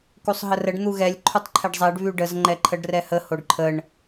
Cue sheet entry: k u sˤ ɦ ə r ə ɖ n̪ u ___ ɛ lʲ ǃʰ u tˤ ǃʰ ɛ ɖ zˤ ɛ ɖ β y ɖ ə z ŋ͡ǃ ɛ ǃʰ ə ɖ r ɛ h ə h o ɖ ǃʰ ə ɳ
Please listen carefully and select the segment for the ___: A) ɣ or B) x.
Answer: A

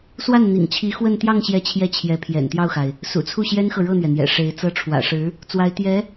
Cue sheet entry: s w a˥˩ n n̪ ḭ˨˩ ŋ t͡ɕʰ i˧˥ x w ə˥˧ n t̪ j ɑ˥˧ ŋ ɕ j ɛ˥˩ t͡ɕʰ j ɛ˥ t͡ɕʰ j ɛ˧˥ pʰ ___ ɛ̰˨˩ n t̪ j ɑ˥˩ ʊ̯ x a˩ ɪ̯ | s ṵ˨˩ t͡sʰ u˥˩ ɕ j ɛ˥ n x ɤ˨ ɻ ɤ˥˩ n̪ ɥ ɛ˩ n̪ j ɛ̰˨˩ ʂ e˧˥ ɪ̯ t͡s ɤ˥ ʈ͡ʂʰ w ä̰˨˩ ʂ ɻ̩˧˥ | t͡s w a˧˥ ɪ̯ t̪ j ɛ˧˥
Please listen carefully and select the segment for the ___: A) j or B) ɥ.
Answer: A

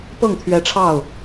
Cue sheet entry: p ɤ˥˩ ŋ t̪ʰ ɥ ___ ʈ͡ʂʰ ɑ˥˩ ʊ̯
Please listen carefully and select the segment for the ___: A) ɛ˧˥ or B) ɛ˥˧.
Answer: A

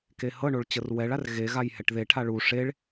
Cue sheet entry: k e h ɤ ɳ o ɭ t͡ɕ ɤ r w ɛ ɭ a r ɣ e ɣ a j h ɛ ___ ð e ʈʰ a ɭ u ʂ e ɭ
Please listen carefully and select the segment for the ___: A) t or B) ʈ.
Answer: B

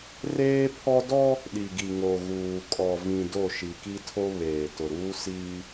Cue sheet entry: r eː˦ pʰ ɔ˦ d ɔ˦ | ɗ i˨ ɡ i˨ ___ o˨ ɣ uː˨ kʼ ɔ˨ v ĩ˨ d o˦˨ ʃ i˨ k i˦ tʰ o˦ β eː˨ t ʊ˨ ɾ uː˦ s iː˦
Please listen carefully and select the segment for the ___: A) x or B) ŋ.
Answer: B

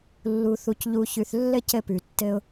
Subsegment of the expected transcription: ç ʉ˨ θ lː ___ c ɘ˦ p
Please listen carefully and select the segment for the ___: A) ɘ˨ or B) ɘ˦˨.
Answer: B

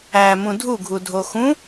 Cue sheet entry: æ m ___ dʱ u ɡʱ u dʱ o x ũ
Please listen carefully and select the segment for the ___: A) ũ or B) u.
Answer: A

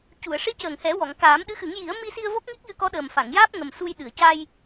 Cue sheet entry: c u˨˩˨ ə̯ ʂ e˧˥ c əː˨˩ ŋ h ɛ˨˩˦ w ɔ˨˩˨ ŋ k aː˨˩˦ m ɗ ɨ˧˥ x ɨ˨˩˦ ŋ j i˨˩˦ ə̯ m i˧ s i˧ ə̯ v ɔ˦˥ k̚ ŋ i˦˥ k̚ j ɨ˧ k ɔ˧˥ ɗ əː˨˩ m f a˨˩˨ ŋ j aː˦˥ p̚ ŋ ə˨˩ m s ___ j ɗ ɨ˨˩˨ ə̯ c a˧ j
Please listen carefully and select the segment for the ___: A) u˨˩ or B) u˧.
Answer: B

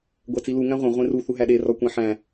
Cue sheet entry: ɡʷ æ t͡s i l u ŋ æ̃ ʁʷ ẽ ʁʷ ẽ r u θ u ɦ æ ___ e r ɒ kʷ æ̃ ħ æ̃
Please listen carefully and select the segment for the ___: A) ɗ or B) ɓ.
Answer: A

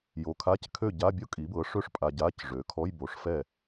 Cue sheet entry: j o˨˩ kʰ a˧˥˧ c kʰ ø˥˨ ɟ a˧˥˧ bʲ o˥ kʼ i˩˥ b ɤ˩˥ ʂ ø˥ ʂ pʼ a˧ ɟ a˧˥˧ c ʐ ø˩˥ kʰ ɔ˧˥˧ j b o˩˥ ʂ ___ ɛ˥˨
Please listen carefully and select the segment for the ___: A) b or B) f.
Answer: B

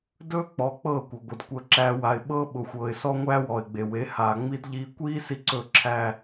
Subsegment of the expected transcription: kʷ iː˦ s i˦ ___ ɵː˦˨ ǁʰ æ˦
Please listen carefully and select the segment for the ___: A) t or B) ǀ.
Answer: B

